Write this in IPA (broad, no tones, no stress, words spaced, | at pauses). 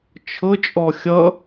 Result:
t͡ʃʰɤt͡ʃʼɔ xʲʌ